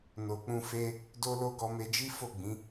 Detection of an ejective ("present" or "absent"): absent